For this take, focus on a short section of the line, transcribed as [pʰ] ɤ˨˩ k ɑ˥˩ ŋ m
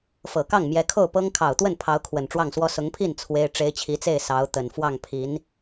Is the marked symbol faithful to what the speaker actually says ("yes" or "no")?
no